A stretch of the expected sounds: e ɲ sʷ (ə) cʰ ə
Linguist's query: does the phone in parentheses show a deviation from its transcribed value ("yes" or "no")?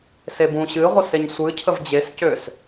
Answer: yes